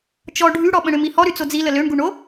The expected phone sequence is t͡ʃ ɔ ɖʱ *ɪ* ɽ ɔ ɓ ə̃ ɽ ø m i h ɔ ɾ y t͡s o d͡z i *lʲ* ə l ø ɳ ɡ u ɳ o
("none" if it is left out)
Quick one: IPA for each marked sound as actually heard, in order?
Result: y, l

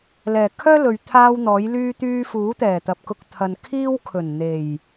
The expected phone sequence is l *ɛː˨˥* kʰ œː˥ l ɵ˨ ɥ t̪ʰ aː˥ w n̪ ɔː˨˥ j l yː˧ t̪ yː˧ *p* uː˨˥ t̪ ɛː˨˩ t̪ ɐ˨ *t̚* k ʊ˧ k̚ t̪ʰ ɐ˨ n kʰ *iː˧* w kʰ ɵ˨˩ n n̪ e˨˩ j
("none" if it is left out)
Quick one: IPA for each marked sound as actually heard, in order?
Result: ɛː˨˩, f, p̚, iː˥

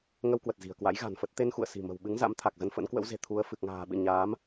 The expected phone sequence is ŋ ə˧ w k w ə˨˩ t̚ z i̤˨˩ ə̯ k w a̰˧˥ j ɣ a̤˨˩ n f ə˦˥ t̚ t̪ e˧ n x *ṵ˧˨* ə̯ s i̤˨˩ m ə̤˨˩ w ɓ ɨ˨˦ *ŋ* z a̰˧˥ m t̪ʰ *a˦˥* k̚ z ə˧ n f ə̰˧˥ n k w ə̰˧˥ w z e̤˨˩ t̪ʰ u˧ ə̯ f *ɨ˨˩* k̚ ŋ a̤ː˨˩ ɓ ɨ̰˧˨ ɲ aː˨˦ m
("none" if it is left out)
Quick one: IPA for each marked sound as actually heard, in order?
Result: ṵ˧˨, ŋ, a˨˩, ɨ˨˩

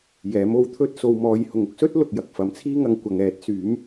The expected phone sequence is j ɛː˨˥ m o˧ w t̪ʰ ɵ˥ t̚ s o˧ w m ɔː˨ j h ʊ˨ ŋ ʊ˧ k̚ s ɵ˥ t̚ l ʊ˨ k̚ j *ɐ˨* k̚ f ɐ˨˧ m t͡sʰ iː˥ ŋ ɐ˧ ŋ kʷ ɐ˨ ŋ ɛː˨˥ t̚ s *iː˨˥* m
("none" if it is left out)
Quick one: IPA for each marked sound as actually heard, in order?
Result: ɐ˨, yː˨˥

